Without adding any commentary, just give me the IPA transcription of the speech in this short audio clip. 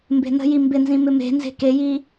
m b e̤ n ə̤ j i m b ɪ n z ĩ m ɪ m e̤ n z e̤ k e j i

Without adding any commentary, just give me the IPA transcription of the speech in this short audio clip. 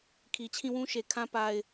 kʰ i˨ t͡ɕʰ ĩ˦˨ w ũ˦ ʃ e˨ kʰ ã˦ p a˦ ɪ̯

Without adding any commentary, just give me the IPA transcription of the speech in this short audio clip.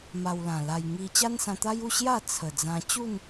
m a˧ w l ã˨˩ l a˧ j ŋ i˧ t͡ɕ a˦ n s ã˧ t̪ a˦ j u˥˧ ɕ j a˥˧ t͡sʰ ə˨˩ d͡z ã˧ t͡ɕ u˥˧ n

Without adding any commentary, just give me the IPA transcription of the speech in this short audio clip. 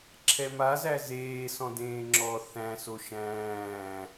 ǁʰ ɛ m a z æ z eː s ɔ̃ d ẽː ŋ͡ǁ ɔ θ æ̃ s o ʃ æ̃ː

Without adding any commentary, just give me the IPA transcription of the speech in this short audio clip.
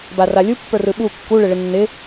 b a r a lʲ u pː ə˞ r ɯ ɓ u kː u ɭ ɪ ɭ ɪ nː ɪ

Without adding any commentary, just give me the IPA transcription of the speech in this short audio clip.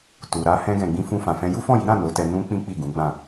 t u˨ ɾ a˧ h ɛ̃˧ ɡ ɛ̃˨ ɡ͡b ĩ˧ f ũ˧ f ã˨ f ɛ̃˧ j u˦ f ɔ̃˦˨ j i˨˦ ɾ ã˦˨ n o˨˦ t ɛ˧ n ũ˧ k͡p ĩ˦ k͡p i˦˨ ɡ ũ˨˦ ɡ͡b ã˦˨

